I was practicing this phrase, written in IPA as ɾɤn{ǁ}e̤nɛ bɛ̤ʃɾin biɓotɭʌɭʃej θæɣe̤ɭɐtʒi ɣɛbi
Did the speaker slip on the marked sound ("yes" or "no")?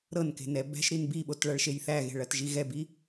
yes